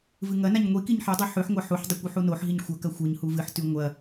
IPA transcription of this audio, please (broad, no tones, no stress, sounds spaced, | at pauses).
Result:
v ɨ ŋ ɐ n a ɲ ŋʷ i k i ɲ ħ i dˤ e ħ ʉ ħ ŋʷ a ħ u ħ dˤ u kʷ ʉ ħ u n o ħ ɦ i ɲ xʷ ɐ k ɐ xʷ ɨ ɲ h u v ɨ ħ t ʉ ŋʷ ɐ